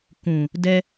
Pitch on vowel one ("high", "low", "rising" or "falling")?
low